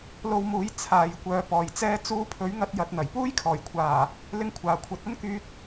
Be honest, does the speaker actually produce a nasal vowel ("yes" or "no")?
no